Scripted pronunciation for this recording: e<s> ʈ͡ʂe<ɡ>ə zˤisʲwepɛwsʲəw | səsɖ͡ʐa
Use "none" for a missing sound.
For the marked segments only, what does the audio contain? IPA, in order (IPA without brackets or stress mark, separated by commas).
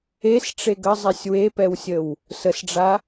s, ɡ